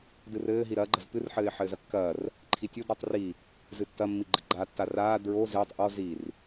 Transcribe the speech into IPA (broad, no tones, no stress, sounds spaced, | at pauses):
d ɨ r ɘː ɦ i ɾ ɐː ɡ͡ǃ ɐ z p ɨ r ħ ɘː ɪ̯ ħ ɘː z ɐ kː ɐː r | ǃʰ i tʲ o d ɾ ɔ tˤ r i | z ɨ tː ɐ mː i ɡ͡ǃ ɨ ɡ͡ǃ a tː a r aː d ɹ o z ɘː tˤ ʔ ɔ z i r